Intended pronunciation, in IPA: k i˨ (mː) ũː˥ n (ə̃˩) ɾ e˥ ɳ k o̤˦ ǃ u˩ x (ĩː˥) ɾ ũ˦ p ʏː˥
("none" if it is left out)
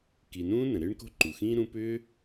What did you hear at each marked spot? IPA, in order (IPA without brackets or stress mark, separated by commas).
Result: n, ə̃˩, ĩː˥